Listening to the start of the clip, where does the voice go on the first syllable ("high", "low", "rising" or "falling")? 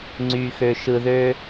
low